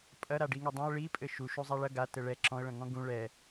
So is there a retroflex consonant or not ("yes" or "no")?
yes